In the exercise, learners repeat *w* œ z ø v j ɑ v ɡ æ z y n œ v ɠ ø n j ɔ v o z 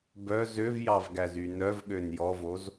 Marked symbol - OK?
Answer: no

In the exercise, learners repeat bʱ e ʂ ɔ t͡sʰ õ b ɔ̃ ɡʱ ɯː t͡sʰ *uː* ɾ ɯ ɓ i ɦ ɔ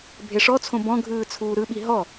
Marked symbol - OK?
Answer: yes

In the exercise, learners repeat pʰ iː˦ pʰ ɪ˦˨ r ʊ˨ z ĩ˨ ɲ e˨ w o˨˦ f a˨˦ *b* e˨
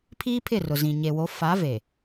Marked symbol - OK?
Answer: no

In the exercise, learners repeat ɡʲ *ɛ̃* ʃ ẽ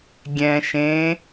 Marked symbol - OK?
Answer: yes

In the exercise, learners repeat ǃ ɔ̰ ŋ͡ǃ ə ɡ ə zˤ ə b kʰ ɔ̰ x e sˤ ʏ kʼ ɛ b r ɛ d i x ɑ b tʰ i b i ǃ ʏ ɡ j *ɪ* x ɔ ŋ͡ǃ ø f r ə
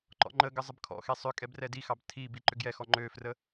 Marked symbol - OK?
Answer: no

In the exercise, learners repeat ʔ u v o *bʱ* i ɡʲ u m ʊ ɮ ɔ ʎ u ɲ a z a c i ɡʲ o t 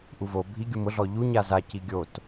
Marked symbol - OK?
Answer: yes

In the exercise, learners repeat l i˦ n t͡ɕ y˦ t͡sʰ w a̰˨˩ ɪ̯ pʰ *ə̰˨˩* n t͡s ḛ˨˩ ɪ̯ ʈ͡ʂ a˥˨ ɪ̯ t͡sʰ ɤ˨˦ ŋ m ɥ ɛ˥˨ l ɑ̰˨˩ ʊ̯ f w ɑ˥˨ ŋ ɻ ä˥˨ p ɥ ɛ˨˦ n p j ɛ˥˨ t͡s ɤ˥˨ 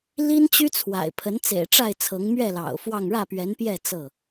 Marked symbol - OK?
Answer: no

